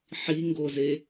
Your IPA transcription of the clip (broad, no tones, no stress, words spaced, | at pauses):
ħiŋɡoze